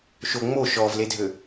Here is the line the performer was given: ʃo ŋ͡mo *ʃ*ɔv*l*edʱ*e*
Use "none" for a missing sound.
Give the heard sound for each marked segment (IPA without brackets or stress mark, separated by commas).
ʃ, l, ø